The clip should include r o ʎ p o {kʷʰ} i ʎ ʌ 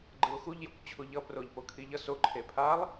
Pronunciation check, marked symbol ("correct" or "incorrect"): incorrect